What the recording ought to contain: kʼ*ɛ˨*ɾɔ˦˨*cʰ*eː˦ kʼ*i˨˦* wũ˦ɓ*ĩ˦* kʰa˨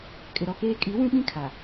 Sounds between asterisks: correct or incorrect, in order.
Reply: incorrect, incorrect, correct, correct

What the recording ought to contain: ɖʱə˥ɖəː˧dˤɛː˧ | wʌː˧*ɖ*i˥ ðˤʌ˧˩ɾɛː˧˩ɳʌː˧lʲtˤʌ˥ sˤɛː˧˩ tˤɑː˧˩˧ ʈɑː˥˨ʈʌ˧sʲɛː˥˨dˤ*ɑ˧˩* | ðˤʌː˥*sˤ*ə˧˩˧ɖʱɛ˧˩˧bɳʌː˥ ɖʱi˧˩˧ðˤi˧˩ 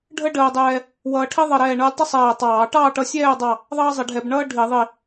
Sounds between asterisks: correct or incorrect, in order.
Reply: incorrect, correct, incorrect

